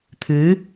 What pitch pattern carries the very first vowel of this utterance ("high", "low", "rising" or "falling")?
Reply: rising